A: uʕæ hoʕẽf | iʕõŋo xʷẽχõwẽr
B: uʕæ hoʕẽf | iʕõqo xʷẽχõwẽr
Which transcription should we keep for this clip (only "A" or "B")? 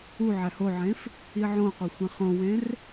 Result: B